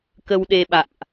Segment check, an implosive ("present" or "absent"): present